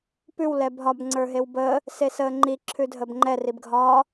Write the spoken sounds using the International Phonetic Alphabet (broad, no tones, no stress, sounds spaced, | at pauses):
p ʉ w l ɛ b ɦ ɒ b ŋ͡ǀ ə˞ ɦ e w b əː | s e s əː ŋ͡ǃ i ǁʰ ʉ dʱ ə b ŋ͡ǃ ɛ r i b ɡʱ ɒː